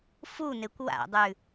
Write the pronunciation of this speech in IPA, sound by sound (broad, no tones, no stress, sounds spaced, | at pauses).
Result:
f u n e kʷ w a̰ dˤ ʉ